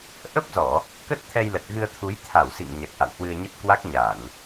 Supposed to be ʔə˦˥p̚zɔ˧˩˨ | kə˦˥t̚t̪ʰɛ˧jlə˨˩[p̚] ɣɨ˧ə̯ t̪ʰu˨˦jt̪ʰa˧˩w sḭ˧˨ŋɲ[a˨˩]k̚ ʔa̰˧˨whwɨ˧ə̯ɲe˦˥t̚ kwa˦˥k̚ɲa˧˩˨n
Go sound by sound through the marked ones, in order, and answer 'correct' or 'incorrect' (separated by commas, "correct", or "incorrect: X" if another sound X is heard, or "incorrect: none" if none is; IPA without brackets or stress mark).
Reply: incorrect: t̚, correct